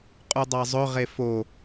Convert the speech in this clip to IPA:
qʼ u dˤ ɑ zˤ ɵ ʁ e f o

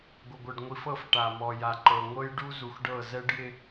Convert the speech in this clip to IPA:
ɡʷ ɪ˨ ɡʷ ɤ˨ ɖ ŋʷ i˨ f ɤ˦˨ f ʈ a˨ m ɔ˨ j a˨ ǃ ɤ˨ ŋʷ ɤ˦ j ɖ u˦ z u˨ x ɖ ɤ˦˨ z ɛ˦ ɖ j ɪ˦

